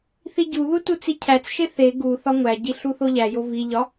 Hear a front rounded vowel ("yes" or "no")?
no